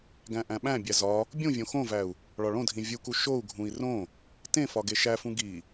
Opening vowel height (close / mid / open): open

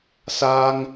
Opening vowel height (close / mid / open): open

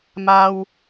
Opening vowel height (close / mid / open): open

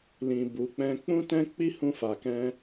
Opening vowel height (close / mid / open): close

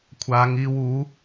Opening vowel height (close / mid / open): open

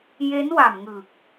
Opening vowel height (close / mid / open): mid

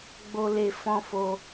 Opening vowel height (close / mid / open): mid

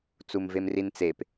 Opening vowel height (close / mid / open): close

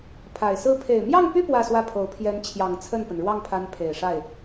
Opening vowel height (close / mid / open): open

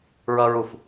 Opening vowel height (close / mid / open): mid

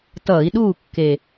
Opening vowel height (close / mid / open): mid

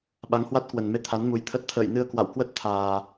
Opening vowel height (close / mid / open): open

